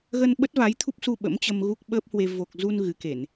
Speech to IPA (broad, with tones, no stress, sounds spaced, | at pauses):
ɣ ə˧ n ɓ ə˦˥ t̚ v a˨˦ j t̪ʰ u˦˥ p̚ s u˧ ɓ ə̰˧˥ m t͡ɕ ə˧ m ɣ u˦˥ k̚ ɓ əː˦˥ p̚ h w e˧ v o˨˩ k̚ z u˧ n ɣ ɨ˨˦ k e˧˩˨ n